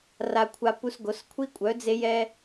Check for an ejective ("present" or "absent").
present